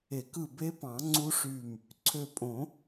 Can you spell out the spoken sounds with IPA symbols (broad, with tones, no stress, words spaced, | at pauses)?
e˨˩˦k ɯ˧˩be˦˥pɑ̃˨˩˦ ŋ͡ǀu˦˥ʂy˧˩m | ǀʰø˧˩pʼõ˨˩˦